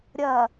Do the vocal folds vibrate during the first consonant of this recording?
yes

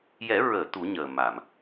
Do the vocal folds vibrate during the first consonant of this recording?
yes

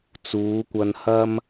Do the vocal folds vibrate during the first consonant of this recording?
no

